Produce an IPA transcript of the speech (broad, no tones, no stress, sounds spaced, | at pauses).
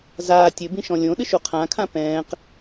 z aː tʲ ɘ b ĩ ʃ ɔ̃ lʲ õ ɗ ɨ ʃ u qʰ ã kʰ ã p ɛ̃ː q